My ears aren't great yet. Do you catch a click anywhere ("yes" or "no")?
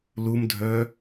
no